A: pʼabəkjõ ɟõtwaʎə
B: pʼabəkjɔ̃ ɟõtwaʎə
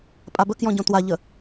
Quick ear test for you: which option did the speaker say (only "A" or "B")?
B